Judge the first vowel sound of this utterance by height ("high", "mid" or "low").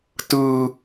high